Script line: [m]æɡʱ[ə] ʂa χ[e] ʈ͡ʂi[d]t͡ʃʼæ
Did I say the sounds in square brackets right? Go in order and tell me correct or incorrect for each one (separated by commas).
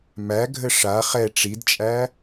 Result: correct, correct, incorrect, correct